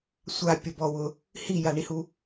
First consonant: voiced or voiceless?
voiceless